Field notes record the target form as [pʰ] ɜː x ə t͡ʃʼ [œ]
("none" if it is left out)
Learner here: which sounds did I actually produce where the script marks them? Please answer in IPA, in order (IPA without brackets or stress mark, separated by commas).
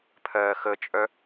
pʰ, œ